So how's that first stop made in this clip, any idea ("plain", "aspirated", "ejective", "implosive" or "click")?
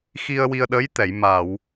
implosive